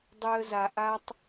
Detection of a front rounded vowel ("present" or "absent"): present